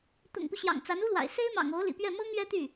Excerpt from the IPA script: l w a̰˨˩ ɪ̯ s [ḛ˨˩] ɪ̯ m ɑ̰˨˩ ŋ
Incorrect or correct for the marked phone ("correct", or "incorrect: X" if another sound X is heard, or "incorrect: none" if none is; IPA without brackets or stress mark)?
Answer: incorrect: e˥